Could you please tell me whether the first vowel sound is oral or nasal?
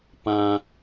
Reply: nasal